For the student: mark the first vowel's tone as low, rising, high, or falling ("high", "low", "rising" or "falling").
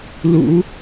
rising